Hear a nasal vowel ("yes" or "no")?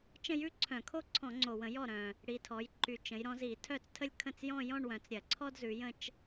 yes